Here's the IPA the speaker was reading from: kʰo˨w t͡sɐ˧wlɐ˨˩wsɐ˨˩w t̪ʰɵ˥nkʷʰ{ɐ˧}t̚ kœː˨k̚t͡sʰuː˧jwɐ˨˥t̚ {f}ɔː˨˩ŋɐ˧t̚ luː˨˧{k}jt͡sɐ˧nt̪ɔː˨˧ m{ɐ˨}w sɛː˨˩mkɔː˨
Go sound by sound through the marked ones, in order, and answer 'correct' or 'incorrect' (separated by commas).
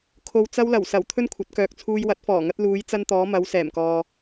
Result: incorrect, correct, incorrect, incorrect